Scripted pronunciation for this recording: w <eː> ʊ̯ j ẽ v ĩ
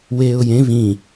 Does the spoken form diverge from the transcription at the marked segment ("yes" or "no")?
no